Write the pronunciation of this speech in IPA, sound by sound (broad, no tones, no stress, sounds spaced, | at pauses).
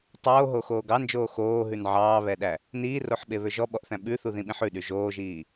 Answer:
tˤ oː ɦ o x oː ɡ ɑ n d͡ʒ oː x oː ɦ ʉ n ʕ ɑː β ɛ ɗ æ | n iː r o ħ ɓ e β ø ʒ ɔ ɓ ɔ ʔ θ æ̃ ɓ ʉ θ u ð ĩ ɓ ĩ ħ ʉ ɗ y ʒ oː ʒ iː